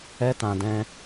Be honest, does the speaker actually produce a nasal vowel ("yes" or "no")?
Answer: yes